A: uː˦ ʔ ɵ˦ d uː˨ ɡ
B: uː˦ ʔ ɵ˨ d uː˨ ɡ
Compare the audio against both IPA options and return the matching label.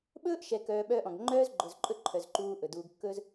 B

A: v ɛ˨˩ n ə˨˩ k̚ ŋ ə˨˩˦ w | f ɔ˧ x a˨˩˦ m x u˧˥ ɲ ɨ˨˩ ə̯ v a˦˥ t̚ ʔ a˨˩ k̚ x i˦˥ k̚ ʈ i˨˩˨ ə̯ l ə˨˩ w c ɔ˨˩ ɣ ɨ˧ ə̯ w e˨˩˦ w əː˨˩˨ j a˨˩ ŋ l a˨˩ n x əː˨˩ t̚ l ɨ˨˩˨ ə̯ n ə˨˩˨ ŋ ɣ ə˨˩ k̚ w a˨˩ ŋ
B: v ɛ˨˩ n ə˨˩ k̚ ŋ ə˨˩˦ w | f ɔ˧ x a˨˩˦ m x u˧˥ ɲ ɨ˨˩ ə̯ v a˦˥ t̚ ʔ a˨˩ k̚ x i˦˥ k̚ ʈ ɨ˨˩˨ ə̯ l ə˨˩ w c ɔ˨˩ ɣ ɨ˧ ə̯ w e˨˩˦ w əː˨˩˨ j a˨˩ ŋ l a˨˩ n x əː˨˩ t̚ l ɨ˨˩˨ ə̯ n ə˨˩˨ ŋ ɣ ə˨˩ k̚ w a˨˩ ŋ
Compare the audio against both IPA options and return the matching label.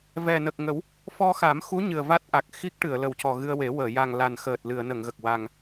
B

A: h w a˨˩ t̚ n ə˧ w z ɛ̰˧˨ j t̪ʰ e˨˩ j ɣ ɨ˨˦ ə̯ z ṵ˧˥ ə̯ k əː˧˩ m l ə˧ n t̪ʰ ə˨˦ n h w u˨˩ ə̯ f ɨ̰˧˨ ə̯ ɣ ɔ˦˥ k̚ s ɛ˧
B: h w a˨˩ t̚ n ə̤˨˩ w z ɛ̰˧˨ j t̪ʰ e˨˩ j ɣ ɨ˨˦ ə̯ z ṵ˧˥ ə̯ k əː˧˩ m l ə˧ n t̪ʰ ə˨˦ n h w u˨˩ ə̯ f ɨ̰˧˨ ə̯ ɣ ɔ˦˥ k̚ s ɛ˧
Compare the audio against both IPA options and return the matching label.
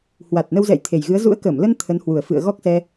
A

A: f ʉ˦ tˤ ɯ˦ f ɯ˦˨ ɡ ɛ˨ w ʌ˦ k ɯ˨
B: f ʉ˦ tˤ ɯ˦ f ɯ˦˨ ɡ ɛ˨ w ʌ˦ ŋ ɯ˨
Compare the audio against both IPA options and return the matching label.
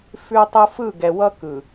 A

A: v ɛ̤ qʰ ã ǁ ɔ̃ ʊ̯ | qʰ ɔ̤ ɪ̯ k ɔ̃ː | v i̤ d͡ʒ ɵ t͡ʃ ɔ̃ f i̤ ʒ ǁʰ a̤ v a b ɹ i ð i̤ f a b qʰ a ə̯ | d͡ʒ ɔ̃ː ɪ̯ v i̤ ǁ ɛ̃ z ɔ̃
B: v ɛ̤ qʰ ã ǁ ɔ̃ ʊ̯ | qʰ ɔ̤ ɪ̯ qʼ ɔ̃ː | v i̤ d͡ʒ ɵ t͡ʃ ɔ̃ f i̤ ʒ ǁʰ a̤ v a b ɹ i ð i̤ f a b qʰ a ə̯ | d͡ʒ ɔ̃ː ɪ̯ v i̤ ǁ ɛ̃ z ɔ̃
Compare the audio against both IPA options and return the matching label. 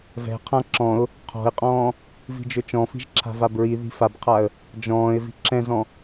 B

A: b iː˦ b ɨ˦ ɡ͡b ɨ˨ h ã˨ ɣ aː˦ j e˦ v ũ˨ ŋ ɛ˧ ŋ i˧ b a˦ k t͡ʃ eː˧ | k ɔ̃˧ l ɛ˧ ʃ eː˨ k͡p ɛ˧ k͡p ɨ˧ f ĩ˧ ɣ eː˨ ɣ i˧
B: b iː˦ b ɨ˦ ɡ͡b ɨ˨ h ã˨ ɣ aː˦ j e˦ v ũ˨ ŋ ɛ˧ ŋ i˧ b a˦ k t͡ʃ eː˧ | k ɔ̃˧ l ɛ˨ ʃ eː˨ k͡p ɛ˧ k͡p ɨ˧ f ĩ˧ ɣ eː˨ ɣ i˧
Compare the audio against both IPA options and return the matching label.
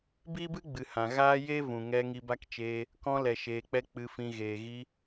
B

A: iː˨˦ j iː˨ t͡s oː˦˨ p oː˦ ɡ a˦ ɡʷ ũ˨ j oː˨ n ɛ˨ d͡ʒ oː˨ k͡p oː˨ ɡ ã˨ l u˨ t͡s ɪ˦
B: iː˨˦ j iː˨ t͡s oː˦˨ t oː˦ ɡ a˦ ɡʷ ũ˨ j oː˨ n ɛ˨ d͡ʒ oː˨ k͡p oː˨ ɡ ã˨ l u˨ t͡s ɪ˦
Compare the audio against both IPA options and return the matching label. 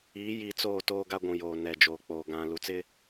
B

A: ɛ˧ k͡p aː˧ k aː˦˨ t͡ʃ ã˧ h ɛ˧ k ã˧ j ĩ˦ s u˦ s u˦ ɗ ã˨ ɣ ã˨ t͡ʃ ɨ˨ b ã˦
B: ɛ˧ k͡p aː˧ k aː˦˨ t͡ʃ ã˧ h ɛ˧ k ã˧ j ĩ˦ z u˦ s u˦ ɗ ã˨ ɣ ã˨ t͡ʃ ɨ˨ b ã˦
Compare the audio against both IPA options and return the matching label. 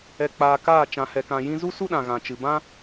B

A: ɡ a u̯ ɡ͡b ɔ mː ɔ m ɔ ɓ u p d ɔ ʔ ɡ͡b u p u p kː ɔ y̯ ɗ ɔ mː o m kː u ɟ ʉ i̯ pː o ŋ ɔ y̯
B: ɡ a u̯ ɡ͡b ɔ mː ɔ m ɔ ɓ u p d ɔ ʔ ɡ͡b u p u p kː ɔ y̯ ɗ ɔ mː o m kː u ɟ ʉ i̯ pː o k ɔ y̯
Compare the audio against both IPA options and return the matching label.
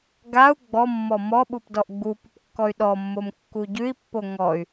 A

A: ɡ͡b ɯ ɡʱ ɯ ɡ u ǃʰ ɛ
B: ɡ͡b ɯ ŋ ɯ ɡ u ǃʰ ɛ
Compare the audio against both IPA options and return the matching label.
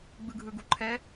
A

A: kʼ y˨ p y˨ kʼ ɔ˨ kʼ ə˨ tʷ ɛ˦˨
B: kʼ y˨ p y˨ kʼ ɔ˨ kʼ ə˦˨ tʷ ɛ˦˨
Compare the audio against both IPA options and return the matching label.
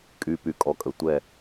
A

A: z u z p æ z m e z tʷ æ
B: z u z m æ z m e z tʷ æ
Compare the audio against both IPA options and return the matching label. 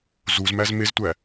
B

